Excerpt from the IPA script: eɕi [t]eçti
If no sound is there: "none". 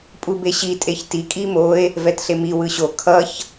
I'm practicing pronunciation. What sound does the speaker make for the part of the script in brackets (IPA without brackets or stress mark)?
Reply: tʼ